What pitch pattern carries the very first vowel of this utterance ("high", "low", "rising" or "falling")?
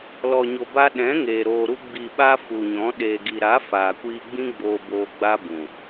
low